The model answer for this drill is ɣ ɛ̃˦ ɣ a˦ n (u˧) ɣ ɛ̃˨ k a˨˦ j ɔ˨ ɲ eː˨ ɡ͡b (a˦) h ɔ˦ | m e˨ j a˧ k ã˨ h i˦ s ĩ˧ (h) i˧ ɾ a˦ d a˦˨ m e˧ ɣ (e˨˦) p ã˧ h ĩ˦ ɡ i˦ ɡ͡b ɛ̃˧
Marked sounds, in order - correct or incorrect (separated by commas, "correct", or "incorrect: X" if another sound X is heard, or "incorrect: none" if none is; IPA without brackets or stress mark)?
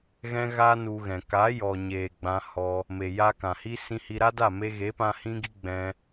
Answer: correct, incorrect: ã˦, correct, correct